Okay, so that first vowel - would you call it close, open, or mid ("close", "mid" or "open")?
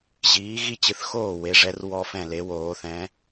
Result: close